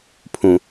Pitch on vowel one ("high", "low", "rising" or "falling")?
low